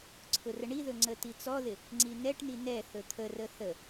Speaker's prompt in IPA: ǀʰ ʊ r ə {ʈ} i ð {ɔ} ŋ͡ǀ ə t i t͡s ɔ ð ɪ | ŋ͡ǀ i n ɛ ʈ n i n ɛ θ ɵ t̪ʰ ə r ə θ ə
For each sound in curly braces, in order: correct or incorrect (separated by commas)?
incorrect, incorrect